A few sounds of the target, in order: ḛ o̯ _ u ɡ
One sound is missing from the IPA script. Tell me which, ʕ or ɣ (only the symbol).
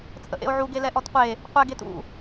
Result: ʕ